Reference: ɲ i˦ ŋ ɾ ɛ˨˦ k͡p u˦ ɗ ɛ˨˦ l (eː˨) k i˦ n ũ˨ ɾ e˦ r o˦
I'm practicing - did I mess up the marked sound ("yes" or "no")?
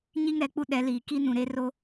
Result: yes